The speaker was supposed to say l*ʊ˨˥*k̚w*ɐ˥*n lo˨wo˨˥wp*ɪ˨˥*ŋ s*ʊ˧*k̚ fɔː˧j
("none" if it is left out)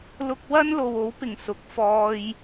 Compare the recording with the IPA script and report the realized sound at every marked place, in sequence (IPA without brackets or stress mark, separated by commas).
ʊ˧, ɐ˥, ɪ˨˩, ʊ˨˥